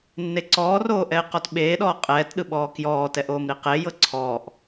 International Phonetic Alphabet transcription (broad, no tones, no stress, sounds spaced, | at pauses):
nː e ǀ ɔː r oː ʔ ɛ ɪ̯ q ɔ t ɓ eː ɗ ɔː qʼ ɛː t ɗ ɯ ɓ ɔː k j ɔː t ɛ ʔ oː m ɾ i q e j ɤ ǀʰ ɔː ʔ